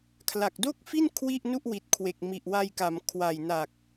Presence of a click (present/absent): absent